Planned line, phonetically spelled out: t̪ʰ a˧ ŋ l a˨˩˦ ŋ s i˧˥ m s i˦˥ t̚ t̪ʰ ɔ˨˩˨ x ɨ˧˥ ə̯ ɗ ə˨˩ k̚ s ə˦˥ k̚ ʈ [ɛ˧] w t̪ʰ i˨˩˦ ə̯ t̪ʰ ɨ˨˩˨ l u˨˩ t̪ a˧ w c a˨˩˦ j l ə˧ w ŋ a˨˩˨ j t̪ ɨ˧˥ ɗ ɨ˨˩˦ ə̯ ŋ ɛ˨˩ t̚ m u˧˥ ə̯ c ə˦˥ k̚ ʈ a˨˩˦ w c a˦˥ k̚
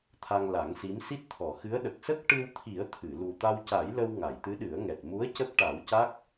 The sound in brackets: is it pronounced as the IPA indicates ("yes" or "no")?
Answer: no